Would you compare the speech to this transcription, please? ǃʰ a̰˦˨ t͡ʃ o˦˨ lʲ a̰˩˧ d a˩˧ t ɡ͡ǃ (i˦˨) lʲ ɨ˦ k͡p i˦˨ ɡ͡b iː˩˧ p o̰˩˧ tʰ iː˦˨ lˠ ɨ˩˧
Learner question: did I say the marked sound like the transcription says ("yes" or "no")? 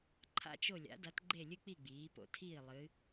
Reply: no